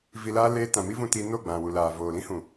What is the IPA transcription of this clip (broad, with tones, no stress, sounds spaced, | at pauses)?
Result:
v i˧ l aː˦ l eː˧ t ã˨ m i˦ v ũ˧ t i˧ n o˦˨ ɡ͡b ã˨ w u˨ l aː˨ v oː˨ l ĩ˦ h ũ˨